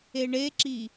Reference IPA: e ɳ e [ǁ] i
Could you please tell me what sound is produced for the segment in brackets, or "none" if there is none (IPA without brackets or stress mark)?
ǁ